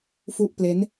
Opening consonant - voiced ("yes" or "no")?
no